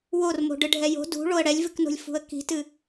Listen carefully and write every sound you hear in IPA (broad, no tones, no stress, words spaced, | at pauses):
wormo̤ ɖɨɖʱɛjo̤ dṳ ɭoə̯ɽɛlʲvɨkno̤lʲ fṳə̯ki̤tɨ